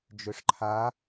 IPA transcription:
d͡ʒ ø ʂ ǃʰ a

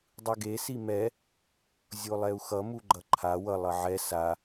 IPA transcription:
dˤ ɯ ɡ e s i m ɛ | zʲ o lˠ ɛ u̯ x ʌ m u ɡ͡ǃ ʌ ǃʰ a w ʌ lˠ ʌ ʕ ɛ s a

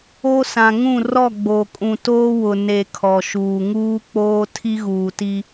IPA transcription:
o˦ s ã˨ ŋ ũ˦˨ r ɔ˦˨ ɡ͡b o˨ kʼ ũ˨ t oː˦ w ʊ˨ n e˨ kʰ ɔ˨ ʃ uː˨ ŋ uː˦ k͡p oː˦ tʰ i˦ ɣ uː˨ t i˦

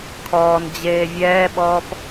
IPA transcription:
kʰ ɔː n d͡ʑ eː vʲ ɛː ɓ ɔː p

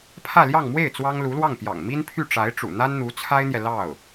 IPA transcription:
pʰ ä˥˧ l j ɑ˥˧ ŋ m w e˥˩ ɪ̯ t͡s w ɑ˥ ŋ l u˧˥ l w ɑ˥˩ ŋ p j ɑ̰˨˩ ŋ m i˥ n pʰ y˥˩ ʈ͡ʂ a˧˥ ɪ̯ ʈ͡ʂ ṵ˨˩ n̪ a˥ n n̪ u˧˥ t͡sʰ a˥ ɪ̯ n̪ j ɛ˨ l ɑ˥˩ ʊ̯

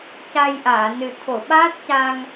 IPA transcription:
c a˧ j ʔ aː˨˩˨ n ɨ˨˩ t̪ʰ o˨˩˨ ɓ aː˦˥ t̚ c a˧ ŋ

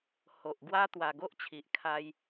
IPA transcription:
h o˨ ʔ ɡ w a˦ t̪ w a˨˩ ɡ o˦ ʔ t͡ɕʰ i˨ ʔ kʰ a˧ j

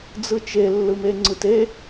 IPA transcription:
d͡z ɯ t͡ʃ e lː ɯ m e ŋ͡ǀ ɯ t e

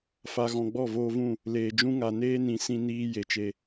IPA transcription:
f a˨ ɣ ɔ̃˨ ɡ͡b ɔ˦˨ v oː˧ v ũ˦˨ | l eː˨ d͡ʒ ũ˦ ŋ a˨ n eː˦ n ĩ˨˦ s ĩ˧ n iː˧ j e˨ t͡ʃ e˧

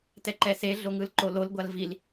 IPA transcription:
t ɛ ǃ ɛ s e ɮ o ŋ ɯ l ǃ o l o l ɡʷ a l v i l

